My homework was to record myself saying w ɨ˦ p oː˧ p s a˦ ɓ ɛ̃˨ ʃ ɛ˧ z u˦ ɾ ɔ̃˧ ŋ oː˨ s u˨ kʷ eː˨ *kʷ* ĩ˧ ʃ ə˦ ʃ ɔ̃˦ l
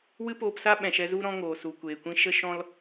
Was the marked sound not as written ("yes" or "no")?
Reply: no